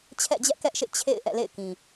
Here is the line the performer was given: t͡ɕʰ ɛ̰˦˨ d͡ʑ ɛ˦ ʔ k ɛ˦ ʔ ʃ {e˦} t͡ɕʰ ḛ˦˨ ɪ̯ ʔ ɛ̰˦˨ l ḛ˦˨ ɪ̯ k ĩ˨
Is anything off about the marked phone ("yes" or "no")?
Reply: yes